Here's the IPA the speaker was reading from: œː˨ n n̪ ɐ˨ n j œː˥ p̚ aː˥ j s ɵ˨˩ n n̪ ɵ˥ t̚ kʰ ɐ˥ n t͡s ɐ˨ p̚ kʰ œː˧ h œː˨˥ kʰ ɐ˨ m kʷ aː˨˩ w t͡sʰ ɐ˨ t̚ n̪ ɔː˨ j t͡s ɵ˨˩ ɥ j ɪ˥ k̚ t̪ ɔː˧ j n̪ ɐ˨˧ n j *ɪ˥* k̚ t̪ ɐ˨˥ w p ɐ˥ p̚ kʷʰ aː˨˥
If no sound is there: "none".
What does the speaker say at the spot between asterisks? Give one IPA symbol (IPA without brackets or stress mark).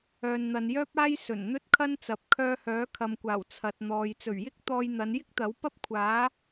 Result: ɪ˥